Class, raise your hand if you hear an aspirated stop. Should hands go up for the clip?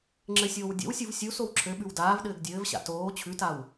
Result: yes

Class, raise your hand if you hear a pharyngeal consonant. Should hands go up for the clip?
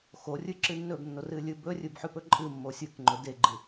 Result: yes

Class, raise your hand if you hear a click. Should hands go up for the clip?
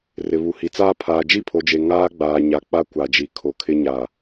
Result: no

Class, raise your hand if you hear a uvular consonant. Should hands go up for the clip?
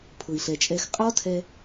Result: yes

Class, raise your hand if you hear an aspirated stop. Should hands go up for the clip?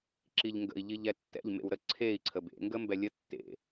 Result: yes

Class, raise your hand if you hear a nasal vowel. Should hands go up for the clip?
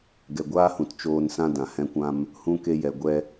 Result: yes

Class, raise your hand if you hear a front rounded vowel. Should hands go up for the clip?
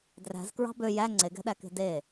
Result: yes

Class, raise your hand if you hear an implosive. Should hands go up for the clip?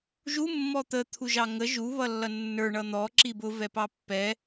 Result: no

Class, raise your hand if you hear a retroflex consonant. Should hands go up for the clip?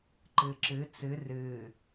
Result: no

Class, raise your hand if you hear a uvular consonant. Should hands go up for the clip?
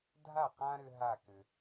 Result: yes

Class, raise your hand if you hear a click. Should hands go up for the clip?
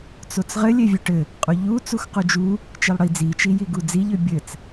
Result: no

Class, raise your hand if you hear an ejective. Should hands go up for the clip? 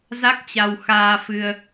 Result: no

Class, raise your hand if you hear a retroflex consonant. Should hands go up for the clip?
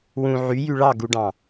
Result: yes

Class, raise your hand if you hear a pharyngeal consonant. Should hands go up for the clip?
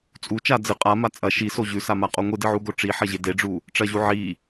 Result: yes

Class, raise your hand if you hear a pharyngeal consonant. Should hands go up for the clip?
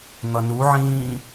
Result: yes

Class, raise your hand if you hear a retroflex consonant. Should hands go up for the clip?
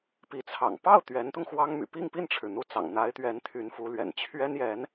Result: yes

